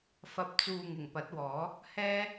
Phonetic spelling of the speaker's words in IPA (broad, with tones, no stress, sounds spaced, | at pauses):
f ɐ˨ p̚ t͡s uː˨ ŋ ɪ˨˩ ŋ p ɐ˨˥ t̚ w ɔː˨˥ | h ɛː˥